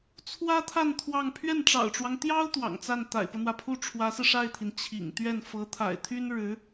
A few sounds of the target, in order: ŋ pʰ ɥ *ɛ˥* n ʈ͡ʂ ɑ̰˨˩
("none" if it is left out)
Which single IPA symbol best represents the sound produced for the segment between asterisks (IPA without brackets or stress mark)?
ɛ˥˩